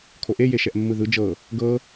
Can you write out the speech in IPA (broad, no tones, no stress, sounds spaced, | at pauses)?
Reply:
kʰ o ʔ e j e ʃ ɛ ʔ mː ɯ ð ɯ d͡ʒ ɤ | ɡ ɤ